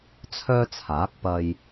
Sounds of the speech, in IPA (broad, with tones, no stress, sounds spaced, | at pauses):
t͡sʰ œː˥ t͡sʰ aː˨˥ k̚ p ɐ˧ j